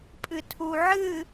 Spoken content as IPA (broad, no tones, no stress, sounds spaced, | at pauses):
pʼ ɨ tʰ u ʕ ɨ